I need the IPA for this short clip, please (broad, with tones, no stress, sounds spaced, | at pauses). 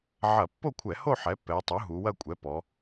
ʕ ɐ˧˩˧ pː o˥˧ kʷʰ ɛ˧˩˧ h o˥˧ ħ ɛ˩˥ pː ɛ˩˧ j tˤ u˩˥ ɦ u˩˧ w ɐ˥˧ kʷʼ ɛ˩˥ p ɔ˩˧